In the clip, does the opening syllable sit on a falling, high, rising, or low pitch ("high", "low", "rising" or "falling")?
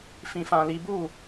low